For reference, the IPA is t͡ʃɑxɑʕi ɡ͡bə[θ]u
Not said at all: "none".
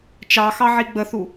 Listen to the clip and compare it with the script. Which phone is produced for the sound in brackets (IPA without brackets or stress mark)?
θ